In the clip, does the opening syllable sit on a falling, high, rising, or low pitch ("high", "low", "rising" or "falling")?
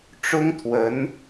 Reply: high